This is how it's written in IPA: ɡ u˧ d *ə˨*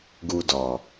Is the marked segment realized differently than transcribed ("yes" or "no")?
yes